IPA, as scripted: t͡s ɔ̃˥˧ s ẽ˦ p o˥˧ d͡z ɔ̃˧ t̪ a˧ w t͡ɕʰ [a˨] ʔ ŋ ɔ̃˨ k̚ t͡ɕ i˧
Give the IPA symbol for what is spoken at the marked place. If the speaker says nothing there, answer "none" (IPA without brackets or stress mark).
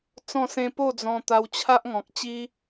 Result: a˦